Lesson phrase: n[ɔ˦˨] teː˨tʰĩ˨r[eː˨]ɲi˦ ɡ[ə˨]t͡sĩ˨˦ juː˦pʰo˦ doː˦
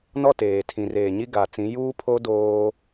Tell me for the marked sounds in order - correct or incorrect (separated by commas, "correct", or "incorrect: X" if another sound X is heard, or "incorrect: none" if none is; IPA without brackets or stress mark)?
correct, correct, incorrect: a˨